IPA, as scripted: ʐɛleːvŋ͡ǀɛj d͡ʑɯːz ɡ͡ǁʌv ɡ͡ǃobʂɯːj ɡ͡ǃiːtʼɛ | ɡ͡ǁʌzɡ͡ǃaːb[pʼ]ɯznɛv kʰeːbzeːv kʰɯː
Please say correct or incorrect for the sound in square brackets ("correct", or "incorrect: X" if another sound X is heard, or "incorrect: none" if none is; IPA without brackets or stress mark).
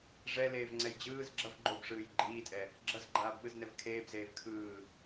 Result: incorrect: ɓ